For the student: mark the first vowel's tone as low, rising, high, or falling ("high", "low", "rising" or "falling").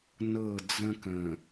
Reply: falling